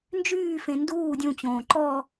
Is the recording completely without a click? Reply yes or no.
no